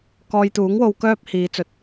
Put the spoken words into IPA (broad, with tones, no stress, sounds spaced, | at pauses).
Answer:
k ɔː˧ j t̪ uː˨˥ ŋ w o˧ w k œː˥ p̚ h iː˨˧ t͡s ɵ˨˥ t̚